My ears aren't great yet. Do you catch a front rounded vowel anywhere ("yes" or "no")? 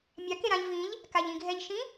no